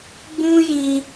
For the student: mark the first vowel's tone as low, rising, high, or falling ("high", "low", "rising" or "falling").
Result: high